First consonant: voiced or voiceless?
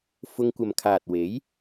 voiceless